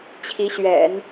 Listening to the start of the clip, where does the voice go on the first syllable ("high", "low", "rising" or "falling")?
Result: rising